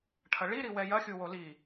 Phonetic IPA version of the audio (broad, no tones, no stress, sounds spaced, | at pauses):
ʈʰ ɐ ɭ i ɾ i w ɛ j ɐ xʲ u w o l i